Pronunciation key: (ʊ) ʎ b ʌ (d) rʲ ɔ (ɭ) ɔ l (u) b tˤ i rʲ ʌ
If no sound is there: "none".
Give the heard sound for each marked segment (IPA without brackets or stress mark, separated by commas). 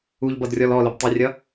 u, d, l, ʊ